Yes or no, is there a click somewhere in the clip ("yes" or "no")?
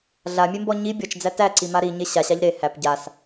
yes